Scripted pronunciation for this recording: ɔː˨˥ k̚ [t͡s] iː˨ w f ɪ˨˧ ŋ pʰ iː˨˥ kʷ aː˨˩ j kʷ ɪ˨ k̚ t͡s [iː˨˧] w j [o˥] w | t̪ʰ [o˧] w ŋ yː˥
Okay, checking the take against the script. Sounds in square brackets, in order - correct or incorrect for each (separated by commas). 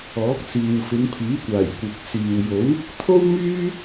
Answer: correct, incorrect, incorrect, incorrect